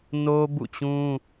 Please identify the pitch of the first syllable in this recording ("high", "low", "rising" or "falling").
high